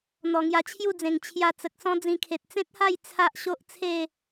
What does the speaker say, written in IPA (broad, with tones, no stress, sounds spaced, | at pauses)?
n̪ ɔ˨˩ ŋ j a˧ t͡ɕʰ j u˥˧ d͡z ẽ˨˩ ŋ t͡ɕʰ j a˧ t͡s ə˨ k̚ s ɔ̃˦ d͡z ĩ˧ kʰ e˨ t̚ t͡s ẽ˦ t̚ h a˥˧ j t͡sʰ a˦ ʔ ɕ o˦ ʔ t͡sʰ e˥˧